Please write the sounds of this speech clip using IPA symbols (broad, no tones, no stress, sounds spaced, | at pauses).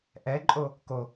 ʔ ɛ ǃʼ o | k o